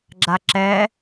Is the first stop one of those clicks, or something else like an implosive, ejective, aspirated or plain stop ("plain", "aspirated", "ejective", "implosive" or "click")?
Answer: click